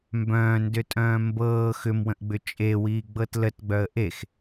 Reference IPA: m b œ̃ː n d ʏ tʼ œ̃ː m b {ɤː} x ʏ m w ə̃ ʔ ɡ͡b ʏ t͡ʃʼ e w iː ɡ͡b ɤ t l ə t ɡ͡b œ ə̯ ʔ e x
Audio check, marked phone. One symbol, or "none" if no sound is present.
ɤː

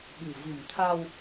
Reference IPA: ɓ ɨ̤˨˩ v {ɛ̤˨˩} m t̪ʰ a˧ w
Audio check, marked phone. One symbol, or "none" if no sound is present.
ɨ̤˨˩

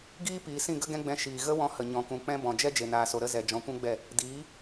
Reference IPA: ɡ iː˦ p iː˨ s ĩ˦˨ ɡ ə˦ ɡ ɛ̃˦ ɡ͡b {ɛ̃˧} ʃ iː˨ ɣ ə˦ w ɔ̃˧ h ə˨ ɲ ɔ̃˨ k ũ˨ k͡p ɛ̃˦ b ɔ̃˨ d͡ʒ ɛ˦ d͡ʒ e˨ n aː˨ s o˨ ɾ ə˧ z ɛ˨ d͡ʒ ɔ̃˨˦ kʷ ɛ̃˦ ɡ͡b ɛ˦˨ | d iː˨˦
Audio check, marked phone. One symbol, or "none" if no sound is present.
ɛ̃˧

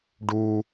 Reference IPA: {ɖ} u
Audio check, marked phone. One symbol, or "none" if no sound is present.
ɖ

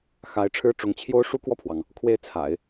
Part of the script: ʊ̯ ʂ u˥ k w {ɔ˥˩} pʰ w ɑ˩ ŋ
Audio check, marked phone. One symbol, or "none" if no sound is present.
ɔ˥˩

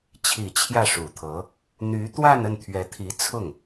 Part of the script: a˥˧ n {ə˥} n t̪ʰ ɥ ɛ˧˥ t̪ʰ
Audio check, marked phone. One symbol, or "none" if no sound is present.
ə˥˩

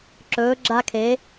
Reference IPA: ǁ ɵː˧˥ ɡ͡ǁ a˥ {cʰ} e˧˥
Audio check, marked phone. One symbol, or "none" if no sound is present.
kʰ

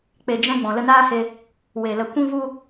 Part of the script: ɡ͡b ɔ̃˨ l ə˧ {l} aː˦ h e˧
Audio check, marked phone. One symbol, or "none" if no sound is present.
n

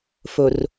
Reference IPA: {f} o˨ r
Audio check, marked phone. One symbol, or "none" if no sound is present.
f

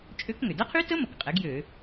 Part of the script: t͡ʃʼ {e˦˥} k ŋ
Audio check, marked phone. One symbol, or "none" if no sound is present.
ø˦˥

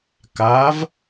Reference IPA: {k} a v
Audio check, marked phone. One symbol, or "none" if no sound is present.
k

